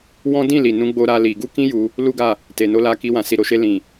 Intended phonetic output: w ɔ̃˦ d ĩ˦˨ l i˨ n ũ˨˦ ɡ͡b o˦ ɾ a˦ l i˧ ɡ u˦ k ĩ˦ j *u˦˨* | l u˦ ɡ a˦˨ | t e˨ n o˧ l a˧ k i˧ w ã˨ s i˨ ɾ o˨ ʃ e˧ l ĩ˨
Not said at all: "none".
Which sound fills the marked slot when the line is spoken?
u˧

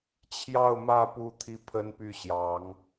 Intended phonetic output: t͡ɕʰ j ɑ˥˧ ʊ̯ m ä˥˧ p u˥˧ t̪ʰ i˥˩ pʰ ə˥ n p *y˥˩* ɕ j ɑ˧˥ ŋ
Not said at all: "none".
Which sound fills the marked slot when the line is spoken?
y˥˩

